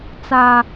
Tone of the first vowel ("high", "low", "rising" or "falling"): high